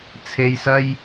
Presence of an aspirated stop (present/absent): present